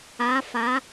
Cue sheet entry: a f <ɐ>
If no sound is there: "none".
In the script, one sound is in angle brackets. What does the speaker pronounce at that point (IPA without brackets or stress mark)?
a